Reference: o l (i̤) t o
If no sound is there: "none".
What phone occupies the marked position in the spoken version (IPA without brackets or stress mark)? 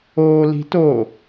i̤